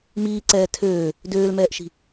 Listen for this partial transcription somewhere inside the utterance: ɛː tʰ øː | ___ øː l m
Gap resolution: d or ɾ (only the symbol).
d